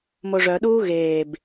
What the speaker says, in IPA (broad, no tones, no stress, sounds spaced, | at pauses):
m o ʐ œ ɗ uː ɣ eː b